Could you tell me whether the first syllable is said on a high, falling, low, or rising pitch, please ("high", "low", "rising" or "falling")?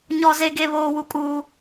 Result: high